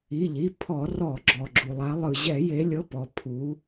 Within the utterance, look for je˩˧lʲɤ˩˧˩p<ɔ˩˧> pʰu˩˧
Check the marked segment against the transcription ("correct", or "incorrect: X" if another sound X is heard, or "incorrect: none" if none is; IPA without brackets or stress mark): incorrect: ɔ˩